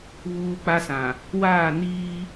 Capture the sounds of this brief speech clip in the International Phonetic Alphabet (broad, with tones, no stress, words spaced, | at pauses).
βuː˦k͡pa˦sã˨ | waː˦˨niː˦